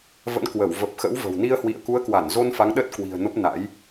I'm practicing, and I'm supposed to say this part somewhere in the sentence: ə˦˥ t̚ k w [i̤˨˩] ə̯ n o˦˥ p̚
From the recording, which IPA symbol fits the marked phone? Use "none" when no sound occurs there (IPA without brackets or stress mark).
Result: i̤˨˩